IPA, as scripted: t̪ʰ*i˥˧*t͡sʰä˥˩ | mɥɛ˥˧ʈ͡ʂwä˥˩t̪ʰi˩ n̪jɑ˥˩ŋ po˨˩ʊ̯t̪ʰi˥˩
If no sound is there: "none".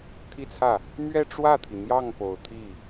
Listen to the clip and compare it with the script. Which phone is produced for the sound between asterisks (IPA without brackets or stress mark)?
i˥˧